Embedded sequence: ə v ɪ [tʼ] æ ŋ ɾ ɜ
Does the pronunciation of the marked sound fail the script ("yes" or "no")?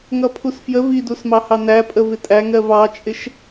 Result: no